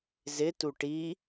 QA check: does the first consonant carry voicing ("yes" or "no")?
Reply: yes